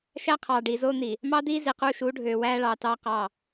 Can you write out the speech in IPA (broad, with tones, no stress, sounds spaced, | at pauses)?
ʃ æ˦ qʰ ɑː˨ ɖ iː˨ z oː˦ n̪ i˨ | m ɑ˦ d̪ iː˦ z i˨ q uː˦ ʃ uː˨˦ ɖʱ øː˨ w æː˦ ɭ ɑː˨ t ɑː˦ q ɑ˦˨